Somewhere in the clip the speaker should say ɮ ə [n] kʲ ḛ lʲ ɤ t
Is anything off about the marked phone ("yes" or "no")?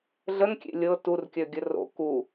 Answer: no